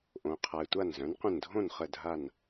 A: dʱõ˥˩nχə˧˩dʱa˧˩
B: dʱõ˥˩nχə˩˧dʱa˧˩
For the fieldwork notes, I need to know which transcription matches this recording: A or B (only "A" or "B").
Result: A